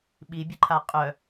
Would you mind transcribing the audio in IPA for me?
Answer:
ɓ i bʲ ə ǃʰ a qʼ œ

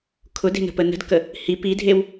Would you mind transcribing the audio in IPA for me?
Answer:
kʰ ʊ d e̤ n ə̤ p ə n ə̤ d k ə | h i p i dʱ e w

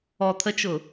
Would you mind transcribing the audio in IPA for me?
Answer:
ɔ t̪ʰ ə t͡ʃ ʊ

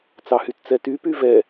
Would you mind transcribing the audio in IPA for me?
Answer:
t͡s ɑ h y t t͡s ɛ t y p y v ɛ

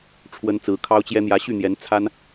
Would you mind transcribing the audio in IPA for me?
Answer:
ʈ͡ʂʰ w ə˥ n t͡s ɹ̩˧˥ kʰ ɑ˥ ʊ̯ t͡ɕ j ɛ˥ n̪ j ä˧˥ ɕ y˥˩ n̪ j ɛ˧˥ n t͡sʰ a˥ n

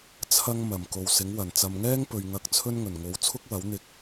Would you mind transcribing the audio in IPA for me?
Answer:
t͡sʰ ɐ˧ ŋ m ɐ˨˩ m k o˨ w s ɪ˨˥ ŋ w ɐ˨˩ n t͡s ɐ˨ m ŋ ɛː˥ ŋ p ɵ˨ ɥ ŋ ɐ˧ k̚ t͡sʰ ɵ˥ n ŋ ɵ˨˩ n ŋ o˨˧ w t͡sʰ ʊ˥ k̚ w ɐ˨˥ w n̪ ɪ˧ k̚

